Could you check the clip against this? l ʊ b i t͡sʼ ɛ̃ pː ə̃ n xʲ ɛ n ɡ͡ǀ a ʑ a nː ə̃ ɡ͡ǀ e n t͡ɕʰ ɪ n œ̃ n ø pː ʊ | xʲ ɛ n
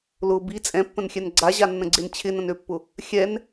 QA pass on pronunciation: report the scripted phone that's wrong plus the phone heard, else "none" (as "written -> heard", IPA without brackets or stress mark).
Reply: œ̃ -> ə̃